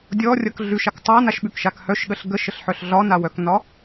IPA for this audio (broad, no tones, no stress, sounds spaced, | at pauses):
dʲ ɔ rʲ ʌ k ɮ ʉ ʃ a k tˤ a n a ʃ ɓ ʉ k ʃ a k h œ ʃ ɠ ə ɬ ɡ ə ʃ ə ɬ ħ œ ɬ ɮ ɒ n a w œ k n ɒ